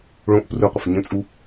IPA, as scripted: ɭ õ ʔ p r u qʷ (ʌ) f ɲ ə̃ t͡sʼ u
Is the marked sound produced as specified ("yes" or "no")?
no